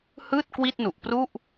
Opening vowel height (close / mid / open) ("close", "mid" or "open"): close